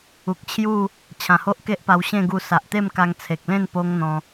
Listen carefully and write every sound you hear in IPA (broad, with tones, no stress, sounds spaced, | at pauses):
u˨ k̚ t͡ɕʰ j u˥˧ | t͡ɕʰ ã˨˩ h o˦ ʔ k e˦ ʔ p a˧ w ɕ ẽ˥˧ ɡ u˧ s a˨ ʔ t̪ e˥˧ m k a˧ ŋ t͡sʰ e˨ k̚ l ẽ˥˧ n p o˦ ŋ n̪ ɔ̃˧